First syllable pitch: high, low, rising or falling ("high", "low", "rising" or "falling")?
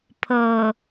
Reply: low